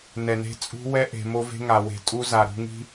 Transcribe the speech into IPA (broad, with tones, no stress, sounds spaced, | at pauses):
n ɛ˨ n e̤˦ t͡sʼ ṳ˦ w ɛ˦ ʔ e̤˨ m o˦ v e̤˦ ŋ a˨ w e̤˨ tʼ u˦ z a˨ ɾ ṳ˨ ŋ i̤˦